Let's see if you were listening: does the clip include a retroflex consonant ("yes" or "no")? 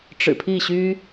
yes